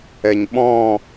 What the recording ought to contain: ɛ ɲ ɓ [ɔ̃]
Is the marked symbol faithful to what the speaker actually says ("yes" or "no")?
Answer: yes